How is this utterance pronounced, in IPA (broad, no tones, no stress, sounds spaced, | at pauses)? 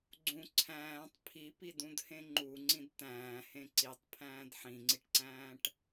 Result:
ɡ͡ǀ ũ ǀʰ æ̃ː tˤ pʰ i p i d ũ d h ẽ ŋ͡ǃ u ŋ͡ǀ ĩ d t̪ æ̃ː h ẽ ǀ i tˤ pʰ æ̃ː d ħ ĩ ŋ͡ǀ i ʈ ǀ æ̃ː ʈ